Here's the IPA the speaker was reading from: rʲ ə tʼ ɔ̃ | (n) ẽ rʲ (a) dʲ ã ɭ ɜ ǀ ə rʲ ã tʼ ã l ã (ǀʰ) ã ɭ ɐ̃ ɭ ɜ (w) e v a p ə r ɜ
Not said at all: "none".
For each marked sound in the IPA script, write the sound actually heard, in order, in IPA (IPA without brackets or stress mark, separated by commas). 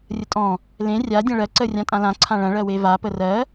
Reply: l, a, ǀʰ, w